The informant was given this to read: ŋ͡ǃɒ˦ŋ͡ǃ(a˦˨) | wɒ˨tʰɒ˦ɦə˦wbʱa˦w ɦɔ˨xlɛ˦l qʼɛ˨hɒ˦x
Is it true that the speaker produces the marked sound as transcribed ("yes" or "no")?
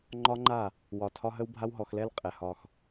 yes